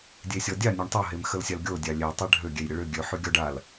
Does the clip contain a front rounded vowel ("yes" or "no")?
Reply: yes